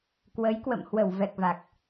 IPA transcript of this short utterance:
k w ə˨˦ j k w ə̰˧˨ m h w ə˧˩ w v ɛ˨˩ k̚ v a˨˩ k̚

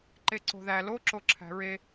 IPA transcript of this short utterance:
ǃ e ǀ o̤ ð æ l o ǁ o ǁʰ æ̤ ɹ e

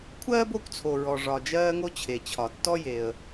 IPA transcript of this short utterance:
kʷʰ ɜː˥ b o˦ kʷ t͡sʰ o˨ ɹ ɔ˨ ʐ ɒ˨ d͡ʒ ɜː˦ ŋ o˦ t͡ɕʰ e˩ t͡ɕʰ ɒ˩ tː ɔ˥ j e˨ ə̯

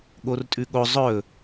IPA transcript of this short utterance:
ɠ o r tʼ ʉ ɠ o zˤ ɵ

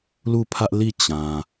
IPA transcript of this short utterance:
l u˦˨ pʰ ä˦ ʔ l i˦˨ t͡ɕ ã˨

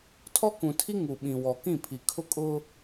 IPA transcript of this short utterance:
tʰ ɔ˦ k ũ˨ tʰ i˦ ŋ u˨ ɓ ĩ˨ w ɔ˨ k ĩ˦˨ pʰ i˨ kʰ ʊ˦ kʼ ʊ˦

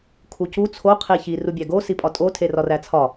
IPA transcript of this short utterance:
kʰ u c u t͡sʰ o qʰ e ç i r u bʲ æ ɡ o s i pʼ ɒ tʼ o tʰ e r ɒ r æ t͡sʰ ɒ

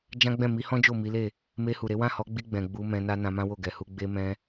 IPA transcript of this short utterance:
d͡ʒ ã˦ ɡ͡b ɛ̃˦˨ m i˨˦ h ɔ̃˦ d͡ʒ o˦˨ m i˨˦ l e˦˨ | m e˧ h u˨ ɾ e˨˦ w ã˦˨ h ɔ˨˦ ɡ͡b i˧ ɡ͡b ɛ̃˨ ɡ͡b u˨˦ m ɛ̃˧ n a˦ n ã˧ m ã˦ w o˦˨ ɡ ɛ˨ h u˧ ɡ͡b e˧ m ɛ̃˧

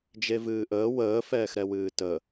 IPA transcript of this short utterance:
d͡ʒ e v ɨː ʔ əː w əː f ɛː x ɾ ɛ w ɨː t ə

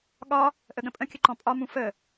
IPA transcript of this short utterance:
ɠ ɒ | ʔ ə ɠ ə̃ pʼ ə̃ kʲ ə ǃ ɔ̃ pʼ ɒ m ũ f ə

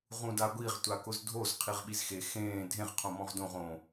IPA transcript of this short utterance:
ʁ ũ d a ɡʷ i ʁ tʷ a k ʊ z dʱ o z qʰ i ʁ ɓ i z x e x ẽː dʱ ẽ ʁ qʰ õ m ɔ̃ ʁ d õ ʁ õ

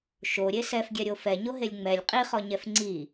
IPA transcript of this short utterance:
ʃ o ɾʲ e s ɛ f ɡʲ ɛ ɾʲ o f ɛ ɲ o ɦ e lʲ ŋ͡m ɛ lʲ qʼ i χ ɔ ɲ ɛ f ŋ͡ǀ i

